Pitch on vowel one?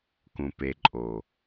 low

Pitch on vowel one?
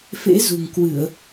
rising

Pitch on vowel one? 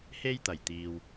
high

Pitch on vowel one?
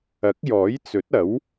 rising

